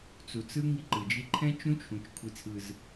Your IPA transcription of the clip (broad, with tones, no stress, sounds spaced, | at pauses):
t͡s u˨ t͡s ɯ˦ ŋ i˦ ǃ ɯ˨ d͡ʒ i˦ ǃʰ ɛ̃˦ t͡ʃ ũ˦ t͡ʃʰ ũ˨ t͡ʃ kʷʰ i˦ t͡sʰ ɯ˦ z